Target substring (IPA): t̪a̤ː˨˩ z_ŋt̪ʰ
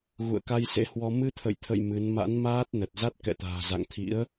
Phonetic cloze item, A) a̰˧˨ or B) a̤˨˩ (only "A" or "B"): A